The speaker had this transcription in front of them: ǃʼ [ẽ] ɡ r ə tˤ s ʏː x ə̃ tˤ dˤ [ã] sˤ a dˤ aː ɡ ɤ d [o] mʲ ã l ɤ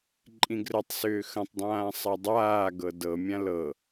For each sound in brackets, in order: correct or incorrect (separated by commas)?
incorrect, incorrect, incorrect